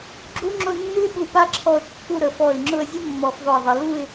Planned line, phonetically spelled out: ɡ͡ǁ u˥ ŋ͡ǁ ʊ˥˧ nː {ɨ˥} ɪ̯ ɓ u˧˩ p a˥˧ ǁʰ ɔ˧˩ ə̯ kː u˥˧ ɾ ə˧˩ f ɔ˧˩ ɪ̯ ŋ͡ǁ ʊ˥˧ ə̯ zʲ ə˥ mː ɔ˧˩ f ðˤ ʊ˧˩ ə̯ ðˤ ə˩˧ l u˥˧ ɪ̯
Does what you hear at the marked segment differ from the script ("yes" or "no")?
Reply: no